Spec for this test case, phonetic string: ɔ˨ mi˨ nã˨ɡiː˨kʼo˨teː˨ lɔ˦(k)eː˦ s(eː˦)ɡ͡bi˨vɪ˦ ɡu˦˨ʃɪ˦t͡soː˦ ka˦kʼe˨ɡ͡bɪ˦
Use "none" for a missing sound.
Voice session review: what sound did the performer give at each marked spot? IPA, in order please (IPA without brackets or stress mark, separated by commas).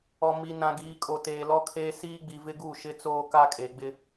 kʰ, iː˦